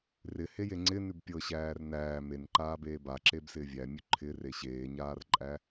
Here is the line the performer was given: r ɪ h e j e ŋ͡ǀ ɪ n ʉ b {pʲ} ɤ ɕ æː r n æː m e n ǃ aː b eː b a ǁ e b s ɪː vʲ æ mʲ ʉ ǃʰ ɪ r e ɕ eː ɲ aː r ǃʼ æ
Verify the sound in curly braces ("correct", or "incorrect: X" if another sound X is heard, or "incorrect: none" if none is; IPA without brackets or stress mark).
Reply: correct